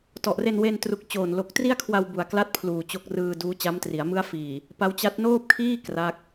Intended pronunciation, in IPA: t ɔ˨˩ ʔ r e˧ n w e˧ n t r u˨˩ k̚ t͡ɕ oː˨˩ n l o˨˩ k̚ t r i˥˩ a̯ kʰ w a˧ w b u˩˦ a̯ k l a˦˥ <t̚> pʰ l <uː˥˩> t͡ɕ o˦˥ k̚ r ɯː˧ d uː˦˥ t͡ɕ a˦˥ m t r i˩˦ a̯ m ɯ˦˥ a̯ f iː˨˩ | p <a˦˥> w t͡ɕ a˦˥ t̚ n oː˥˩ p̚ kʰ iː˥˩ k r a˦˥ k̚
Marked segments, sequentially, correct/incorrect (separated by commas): correct, incorrect, correct